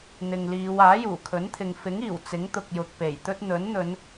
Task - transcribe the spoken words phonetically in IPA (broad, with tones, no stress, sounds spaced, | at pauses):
n̪ ɪ˨ ŋ l iː˨˧ w aː˨˥ j uː˨˩ kʰ ɵ˨˥ n t̪ʰ ɪ˨ ŋ f ɪ˨˥ ŋ iː˨˩ w t͡s ɪ˨˥ ŋ t̪ ʊ˨ k̚ j ʊ˨ k̚ p e˨˩ j t̪ ɵ˥ t̚ n̪ ɵ˨˥ n n̪ ɵ˨˧ n